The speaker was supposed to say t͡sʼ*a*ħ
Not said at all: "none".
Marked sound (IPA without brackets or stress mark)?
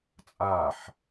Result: a